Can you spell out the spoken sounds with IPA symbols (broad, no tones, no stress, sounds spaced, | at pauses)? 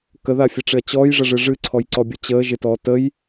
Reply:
k ə ð a fʲ ə ʈ͡ʂ ɪ ɐ̯ t͡ɕ ɔː j ʐ ə ʐ ɨ ʐ ɨ ǀʰ ɔ j ǀ ɔ bʲ ʊ t͡ɕ əː ʒ ɪ t ɔː t ə j